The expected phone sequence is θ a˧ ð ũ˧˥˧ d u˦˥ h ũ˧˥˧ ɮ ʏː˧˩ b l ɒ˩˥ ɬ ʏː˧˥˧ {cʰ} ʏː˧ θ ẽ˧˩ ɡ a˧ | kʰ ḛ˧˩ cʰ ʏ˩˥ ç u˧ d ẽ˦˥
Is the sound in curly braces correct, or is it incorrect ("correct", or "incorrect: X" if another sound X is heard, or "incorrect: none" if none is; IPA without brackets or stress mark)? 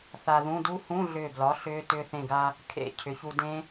incorrect: t